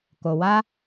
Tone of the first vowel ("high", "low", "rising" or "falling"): low